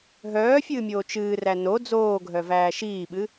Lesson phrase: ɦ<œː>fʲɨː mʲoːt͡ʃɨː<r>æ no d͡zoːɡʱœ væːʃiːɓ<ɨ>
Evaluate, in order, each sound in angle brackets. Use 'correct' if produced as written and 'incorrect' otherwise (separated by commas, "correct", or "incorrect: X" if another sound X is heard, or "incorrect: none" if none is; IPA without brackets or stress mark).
correct, correct, correct